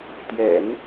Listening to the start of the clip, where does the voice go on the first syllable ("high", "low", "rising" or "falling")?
low